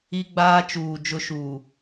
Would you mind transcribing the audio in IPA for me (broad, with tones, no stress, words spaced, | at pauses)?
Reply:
i˦ɡ͡baː˦t͡ʃuː˨ d͡ʒʊ˦ʃuː˨